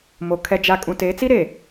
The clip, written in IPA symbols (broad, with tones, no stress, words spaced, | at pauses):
mo˨ kʰɛ˨d͡ʒa˨ kʼũ˨te˨˦t͡si˦ ɾe˨